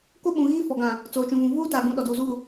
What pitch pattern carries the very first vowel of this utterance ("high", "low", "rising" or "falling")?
high